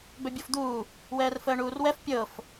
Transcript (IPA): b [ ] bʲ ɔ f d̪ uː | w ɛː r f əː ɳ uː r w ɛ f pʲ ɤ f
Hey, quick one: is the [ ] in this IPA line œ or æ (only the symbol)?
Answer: œ